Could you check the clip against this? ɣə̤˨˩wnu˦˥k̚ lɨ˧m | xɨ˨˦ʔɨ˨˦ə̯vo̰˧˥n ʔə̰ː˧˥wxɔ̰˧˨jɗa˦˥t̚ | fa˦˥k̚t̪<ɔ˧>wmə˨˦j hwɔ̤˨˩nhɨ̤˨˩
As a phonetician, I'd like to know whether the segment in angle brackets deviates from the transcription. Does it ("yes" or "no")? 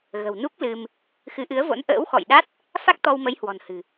no